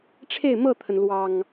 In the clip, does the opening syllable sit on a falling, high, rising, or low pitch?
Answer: falling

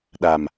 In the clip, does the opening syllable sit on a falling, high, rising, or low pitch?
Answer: low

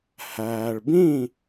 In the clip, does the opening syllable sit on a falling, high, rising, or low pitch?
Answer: low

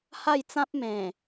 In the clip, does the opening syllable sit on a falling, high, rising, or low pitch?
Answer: falling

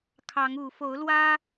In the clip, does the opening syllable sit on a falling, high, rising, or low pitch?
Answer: rising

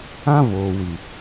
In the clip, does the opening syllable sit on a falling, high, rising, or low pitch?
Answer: high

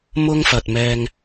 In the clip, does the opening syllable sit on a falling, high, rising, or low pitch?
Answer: high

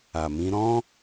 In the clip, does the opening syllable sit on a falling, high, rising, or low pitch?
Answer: low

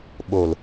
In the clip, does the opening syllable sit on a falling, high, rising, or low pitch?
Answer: low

